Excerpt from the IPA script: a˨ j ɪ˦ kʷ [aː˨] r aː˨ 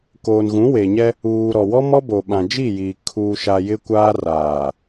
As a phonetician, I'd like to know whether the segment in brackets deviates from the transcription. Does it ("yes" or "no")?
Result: yes